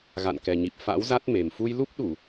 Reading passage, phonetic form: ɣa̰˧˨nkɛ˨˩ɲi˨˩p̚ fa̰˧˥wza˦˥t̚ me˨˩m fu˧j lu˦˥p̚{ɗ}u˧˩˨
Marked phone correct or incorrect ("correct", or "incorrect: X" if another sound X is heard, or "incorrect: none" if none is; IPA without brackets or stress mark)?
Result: correct